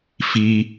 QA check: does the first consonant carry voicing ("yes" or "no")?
no